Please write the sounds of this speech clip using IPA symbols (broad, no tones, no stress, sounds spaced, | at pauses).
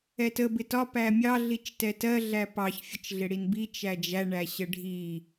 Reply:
ɛ t ə b ɪ t ɒ p æ mʲ ɑ ɮ i t͡ʃ t ɛ t ɜ ɮ æ p ɑ ç fʲ ə t͡ʃ ɮ ɪ ɽ i n b i t͡ʃ æ d͡ʒ æ ɳ æ ɕ ə ɖʱ i